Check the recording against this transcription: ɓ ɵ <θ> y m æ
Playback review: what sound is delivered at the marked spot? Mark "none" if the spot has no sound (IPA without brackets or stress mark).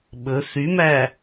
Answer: θ